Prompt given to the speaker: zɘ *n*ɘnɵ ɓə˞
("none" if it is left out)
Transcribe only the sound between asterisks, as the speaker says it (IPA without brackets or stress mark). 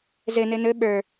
n